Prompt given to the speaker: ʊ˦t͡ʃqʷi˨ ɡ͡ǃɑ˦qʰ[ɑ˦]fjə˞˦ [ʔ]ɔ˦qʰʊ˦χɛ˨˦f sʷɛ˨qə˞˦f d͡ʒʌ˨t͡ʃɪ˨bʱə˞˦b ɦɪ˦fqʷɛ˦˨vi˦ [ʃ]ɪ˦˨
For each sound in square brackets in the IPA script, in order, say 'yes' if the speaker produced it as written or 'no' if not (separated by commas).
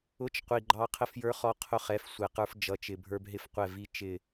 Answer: no, no, no